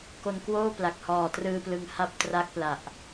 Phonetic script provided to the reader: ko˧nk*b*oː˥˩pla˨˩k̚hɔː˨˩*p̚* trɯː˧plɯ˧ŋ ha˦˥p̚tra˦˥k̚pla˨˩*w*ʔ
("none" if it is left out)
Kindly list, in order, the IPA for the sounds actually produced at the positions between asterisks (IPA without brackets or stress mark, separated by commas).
w, none, none